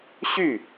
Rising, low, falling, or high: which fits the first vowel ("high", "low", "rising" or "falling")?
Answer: falling